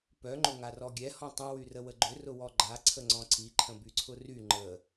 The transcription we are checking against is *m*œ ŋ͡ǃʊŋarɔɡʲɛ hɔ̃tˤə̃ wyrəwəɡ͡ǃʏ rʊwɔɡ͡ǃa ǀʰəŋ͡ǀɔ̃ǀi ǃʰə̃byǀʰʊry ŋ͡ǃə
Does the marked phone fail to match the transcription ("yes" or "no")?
yes